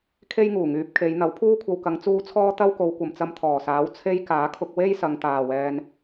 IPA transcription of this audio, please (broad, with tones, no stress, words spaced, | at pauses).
kʰe˥jŋuː˨˩ŋyː˨˥p̚kʰe˨˧j n̪ɐ˨˥wpʰuː˥kʷʰɐ˧wkɐ˨˧ŋ t͡suː˥t͡sʰɔː˥ t̪ɐ˥wko˨˧wkʷɐ˨mt͡sɐ˧m t̪ʰɔː˨˩saː˨˥w t͡sʰe˥j kaː˨˥kʰʊ˧k̚ we˥jsɐ˨ŋt̪aː˨˩wɛː˨n